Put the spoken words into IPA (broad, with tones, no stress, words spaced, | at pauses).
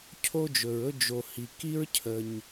cʰo˥d͡ʒɵ˩ɹɵ˥ d͡ʒo˩ hi˩ki˥ɹ cʰə˩ɲ